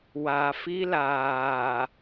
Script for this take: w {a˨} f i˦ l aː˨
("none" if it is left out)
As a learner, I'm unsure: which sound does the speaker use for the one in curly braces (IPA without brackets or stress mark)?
a˨